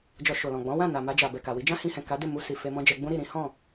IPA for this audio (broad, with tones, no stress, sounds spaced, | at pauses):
d͡ʒ ɔ˧ ʃ o˨ l ɔ̃˨ ɡ͡b ɔ̃˨˦ w ã˦˨ n a˨ m a˧ d͡ʒ a˨ b ɛ˨ k a˨ w i˨˦ d͡ʒ ã˦ h ĩ˧ h ɛ̃˨ k a˨˦ d e˦˨ m u˧ s i˨ f e˧ m ɔ̃˦ d͡ʒ ɛ˧ ɡ͡b ũ˦ ɾ i˦˨ ɾ ĩ˨˦ h ɔ̃˦˨